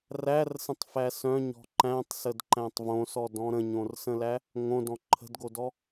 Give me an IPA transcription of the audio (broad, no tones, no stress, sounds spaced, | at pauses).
r æ r s ə̃ tˤ f æ s œ̃ ɲ ɔ̤ ǃ æ̃ tˤ s ə d ǃ æ̃ tˤ v õ s ɔ d ɔ̃ ɾ ə̃ ɲ õ r s ə̃ l æ | ŋ õ d ɔ̃ ǃʰ ə̤ d ɡ o d ɔ